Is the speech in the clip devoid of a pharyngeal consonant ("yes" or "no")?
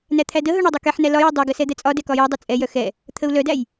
no